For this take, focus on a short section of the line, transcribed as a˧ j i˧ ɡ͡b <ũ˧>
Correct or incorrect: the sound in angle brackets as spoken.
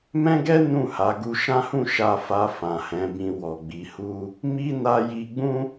incorrect: ũ˦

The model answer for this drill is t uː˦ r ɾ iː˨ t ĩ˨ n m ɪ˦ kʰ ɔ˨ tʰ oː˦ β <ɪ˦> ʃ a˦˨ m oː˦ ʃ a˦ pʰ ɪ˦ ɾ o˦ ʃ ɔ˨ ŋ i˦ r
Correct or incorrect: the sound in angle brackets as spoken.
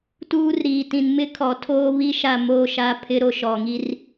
incorrect: i˦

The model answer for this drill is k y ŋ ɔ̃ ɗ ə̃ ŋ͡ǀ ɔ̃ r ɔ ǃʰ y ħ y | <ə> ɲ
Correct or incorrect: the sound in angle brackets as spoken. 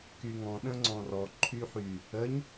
correct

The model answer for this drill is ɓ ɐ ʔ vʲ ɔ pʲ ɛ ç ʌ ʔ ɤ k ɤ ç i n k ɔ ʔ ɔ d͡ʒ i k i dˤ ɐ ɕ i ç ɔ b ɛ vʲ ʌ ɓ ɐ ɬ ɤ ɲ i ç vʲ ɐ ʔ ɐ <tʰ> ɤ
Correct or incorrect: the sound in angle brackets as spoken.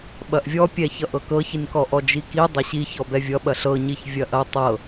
incorrect: tˤ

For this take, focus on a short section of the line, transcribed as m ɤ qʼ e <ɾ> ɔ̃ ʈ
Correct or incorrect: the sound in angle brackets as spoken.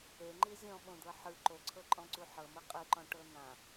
incorrect: ǃ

